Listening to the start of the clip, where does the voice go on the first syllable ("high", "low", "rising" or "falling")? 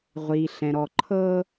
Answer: low